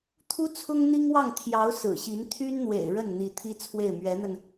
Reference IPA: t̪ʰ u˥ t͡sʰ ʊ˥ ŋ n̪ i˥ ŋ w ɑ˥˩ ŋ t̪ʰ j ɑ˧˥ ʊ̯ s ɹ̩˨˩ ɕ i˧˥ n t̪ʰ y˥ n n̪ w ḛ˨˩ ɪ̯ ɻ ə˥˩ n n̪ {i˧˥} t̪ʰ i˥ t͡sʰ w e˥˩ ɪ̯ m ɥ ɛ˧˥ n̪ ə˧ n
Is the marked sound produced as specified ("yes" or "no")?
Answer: yes